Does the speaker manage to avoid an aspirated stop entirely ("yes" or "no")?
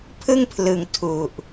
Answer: no